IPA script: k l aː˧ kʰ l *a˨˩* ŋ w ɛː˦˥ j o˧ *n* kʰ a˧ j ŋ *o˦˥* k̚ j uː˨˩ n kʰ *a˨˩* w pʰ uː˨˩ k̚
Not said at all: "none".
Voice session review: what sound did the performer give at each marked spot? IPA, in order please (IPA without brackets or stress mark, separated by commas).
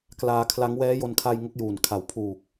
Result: a˦˥, n, o˦˥, a˨˩